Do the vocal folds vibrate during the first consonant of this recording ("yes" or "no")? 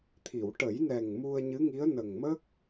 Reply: no